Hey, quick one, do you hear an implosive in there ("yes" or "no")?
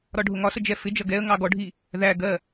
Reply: no